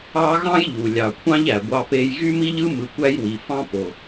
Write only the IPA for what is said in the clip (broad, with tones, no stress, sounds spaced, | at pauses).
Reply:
ɑ˦ ɣ ɑ̃˥ j ʎ u˩ lʲ ɑ˨ kʷʰ ɑ̃˦ ʎ æ˩ ɡʷ ɑ˨ p e˨ j ɣ y˦ m i˦ ʎ ɯ˦ m ɯ˨ kʷ æ˦ j w i˩ f ɑ̃˦ p o˩